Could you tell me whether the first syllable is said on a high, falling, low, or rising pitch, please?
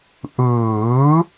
rising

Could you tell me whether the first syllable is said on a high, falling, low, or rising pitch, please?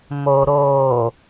low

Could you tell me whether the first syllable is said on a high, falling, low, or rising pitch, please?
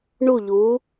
falling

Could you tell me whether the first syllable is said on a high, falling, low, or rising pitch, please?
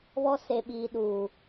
low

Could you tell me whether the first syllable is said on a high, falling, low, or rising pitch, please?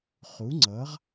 rising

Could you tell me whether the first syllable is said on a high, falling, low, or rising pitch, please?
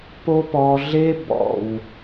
high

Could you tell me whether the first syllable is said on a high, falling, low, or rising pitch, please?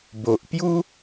low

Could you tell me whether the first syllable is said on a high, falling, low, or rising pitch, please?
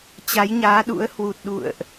rising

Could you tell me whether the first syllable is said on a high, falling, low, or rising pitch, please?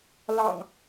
low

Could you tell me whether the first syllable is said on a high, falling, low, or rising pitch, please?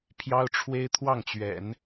high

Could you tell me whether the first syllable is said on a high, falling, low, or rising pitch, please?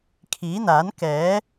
rising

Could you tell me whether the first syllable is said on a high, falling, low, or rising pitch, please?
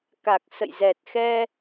low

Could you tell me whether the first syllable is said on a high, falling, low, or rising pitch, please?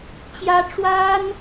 high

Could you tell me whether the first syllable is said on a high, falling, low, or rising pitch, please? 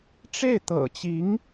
falling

